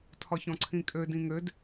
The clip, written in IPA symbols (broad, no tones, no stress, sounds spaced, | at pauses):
tʰ ɒ ç ɔ̃ ǀʰ ĩ kʼ ø d ĩ ŋ ø d